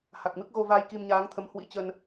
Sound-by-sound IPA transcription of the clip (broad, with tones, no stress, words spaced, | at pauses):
ha˨˩k̚mɨ˦˥k̚ɣo˧ vaː˧jki˧mɲaː˨˦ŋt̪ʰə˨˦m hwḭ˧˥t͡ɕə˧n